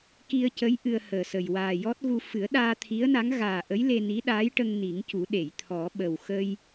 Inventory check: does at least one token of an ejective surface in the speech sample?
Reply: no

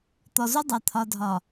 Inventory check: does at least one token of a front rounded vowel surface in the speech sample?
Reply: no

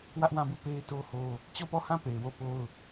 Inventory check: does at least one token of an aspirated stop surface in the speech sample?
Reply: no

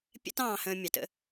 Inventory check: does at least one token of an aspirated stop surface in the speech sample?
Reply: no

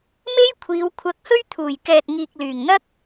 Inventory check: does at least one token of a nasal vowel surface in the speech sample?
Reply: no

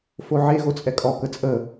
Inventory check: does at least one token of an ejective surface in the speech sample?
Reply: yes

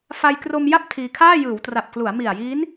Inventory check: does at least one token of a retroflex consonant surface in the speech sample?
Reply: no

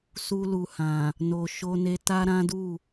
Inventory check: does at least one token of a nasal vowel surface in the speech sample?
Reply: yes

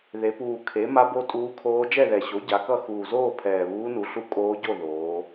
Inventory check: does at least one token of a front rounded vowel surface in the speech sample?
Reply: no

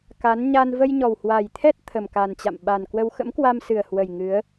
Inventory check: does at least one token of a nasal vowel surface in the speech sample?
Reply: no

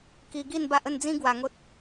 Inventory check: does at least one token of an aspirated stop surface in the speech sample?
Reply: no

